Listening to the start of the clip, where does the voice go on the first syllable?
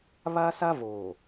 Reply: high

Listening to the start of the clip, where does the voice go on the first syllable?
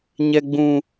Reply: low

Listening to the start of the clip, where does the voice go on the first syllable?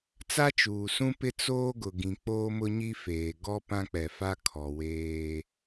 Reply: high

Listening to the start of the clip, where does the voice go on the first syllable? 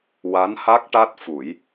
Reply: rising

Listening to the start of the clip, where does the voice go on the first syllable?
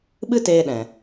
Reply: high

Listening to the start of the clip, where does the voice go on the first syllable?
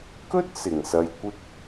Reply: high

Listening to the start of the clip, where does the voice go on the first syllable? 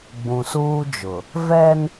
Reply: low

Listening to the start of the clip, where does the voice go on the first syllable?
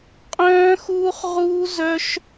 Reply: high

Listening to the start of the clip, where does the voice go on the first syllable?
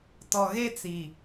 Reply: low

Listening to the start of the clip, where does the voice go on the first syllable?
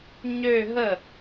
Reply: falling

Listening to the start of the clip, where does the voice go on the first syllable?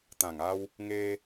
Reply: low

